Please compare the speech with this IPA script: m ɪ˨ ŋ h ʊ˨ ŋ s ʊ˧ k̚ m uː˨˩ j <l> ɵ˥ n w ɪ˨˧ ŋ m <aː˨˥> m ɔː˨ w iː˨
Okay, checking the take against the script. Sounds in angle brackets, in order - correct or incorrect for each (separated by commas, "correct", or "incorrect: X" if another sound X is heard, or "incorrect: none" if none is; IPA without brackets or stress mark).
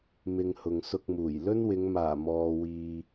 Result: correct, incorrect: aː˨˩